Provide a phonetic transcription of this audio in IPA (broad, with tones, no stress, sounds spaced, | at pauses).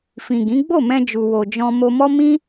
f ĩ˨ ɡ ĩ˨˦ ɡ͡b o˦˨ m ɛ̃˧ d͡ʒ u˨ w o˨ d͡ʒ ɔ̃˧ m o˧ m ɔ˦ m ĩ˦